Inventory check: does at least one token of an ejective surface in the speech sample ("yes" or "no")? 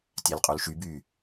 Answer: yes